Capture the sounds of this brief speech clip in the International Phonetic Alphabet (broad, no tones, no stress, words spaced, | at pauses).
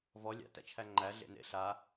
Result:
vɔ lʲa̰tæ̰t͡ʃʰæ ŋ͡ǃæ ɮḛnḛ ɬa